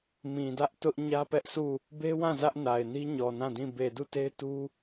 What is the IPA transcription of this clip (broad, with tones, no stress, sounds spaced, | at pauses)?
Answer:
m ĩ˨ d ä˦ ʔ t ʊ˦ ʔ ɲ ä˦ p ɛ˦ ʔ sʰ u˦˨ | b e˦ w ã˦˨ z ä˦ ʔ n a˨ ɪ̯ n i˦ ɲ ɔ˨ n ã˦˨ d ĩ˦˨ b e˨ d u˦˨ t e˦ ɪ̯ t u˦